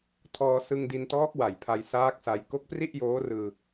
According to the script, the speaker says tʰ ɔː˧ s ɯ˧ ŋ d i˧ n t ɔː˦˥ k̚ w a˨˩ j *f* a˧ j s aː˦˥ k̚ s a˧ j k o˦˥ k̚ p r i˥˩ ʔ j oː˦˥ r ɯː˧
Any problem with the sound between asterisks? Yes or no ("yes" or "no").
yes